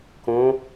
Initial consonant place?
velar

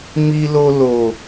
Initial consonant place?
labial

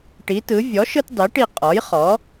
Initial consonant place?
retroflex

